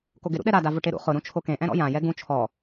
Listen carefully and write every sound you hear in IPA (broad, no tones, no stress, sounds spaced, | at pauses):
k o ɡ ɪ ɾ ṵ ɗ ɛ ɾ a d a v ʊ ʈ e ɾ ṵ χ ʊ ɾ ũ t͡ʃʰ o k ẽ ʔ ɛ̃ ɾ ɔ̰ j ã j ɛ ɡ ũ t͡ʃʰ ɔ